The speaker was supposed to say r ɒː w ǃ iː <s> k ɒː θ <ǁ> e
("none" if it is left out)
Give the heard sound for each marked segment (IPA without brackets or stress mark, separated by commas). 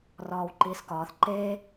s, ǃ